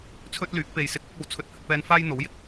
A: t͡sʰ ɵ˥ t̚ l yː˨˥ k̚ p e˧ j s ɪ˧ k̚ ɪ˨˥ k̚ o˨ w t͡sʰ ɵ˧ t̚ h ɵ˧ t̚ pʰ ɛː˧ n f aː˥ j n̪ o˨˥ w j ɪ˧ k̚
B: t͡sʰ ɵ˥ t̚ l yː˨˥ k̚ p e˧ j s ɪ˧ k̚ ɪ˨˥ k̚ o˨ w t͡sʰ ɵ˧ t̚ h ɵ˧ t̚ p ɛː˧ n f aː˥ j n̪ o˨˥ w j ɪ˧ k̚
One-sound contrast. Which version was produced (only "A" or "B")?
B